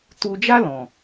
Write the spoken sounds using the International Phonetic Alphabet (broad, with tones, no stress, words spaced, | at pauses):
tu˧d͡ʒa˦lɔ̃˨